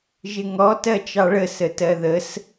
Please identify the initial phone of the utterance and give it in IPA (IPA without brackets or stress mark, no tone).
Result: ʒ